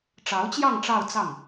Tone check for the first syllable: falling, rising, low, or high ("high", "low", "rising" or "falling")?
rising